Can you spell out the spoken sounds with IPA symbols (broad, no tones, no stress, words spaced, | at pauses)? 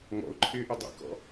ŋɔ̰ʊ̯ǃʰɪːʔɪ dˤḭkɔ̰